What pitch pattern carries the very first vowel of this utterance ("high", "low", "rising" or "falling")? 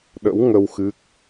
rising